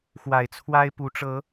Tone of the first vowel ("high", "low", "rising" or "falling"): low